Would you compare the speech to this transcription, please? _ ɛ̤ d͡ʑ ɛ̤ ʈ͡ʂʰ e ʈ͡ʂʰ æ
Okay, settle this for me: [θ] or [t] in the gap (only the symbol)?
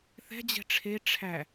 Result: θ